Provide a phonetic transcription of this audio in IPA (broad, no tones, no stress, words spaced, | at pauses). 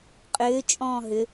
qʼʏː t͡ʃʼɔ̃ːɦʏ